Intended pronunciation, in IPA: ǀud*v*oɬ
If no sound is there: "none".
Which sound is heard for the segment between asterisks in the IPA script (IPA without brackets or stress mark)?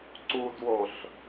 w